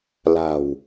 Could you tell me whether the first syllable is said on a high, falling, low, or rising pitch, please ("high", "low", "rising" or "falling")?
low